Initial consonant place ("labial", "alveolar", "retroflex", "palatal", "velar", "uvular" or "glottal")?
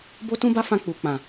labial